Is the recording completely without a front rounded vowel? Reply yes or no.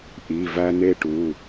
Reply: yes